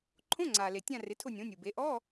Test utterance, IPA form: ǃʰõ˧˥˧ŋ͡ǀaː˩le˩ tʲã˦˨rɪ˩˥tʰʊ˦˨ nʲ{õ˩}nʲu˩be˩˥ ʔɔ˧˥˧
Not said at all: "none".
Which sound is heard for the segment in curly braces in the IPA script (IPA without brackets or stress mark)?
õ˩˥